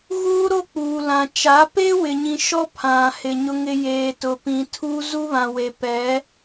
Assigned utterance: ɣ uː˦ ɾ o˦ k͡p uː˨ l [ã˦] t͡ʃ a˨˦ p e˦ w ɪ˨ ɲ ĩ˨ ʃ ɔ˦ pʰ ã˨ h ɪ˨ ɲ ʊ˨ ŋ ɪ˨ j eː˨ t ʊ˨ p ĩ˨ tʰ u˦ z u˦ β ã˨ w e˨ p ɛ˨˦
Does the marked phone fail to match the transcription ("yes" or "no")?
yes